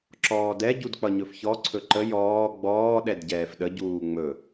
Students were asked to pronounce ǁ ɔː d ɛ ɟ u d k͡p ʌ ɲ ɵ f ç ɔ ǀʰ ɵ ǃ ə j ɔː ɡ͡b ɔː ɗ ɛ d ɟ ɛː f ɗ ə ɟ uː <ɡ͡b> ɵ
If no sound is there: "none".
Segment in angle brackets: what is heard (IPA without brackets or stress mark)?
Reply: ŋ͡m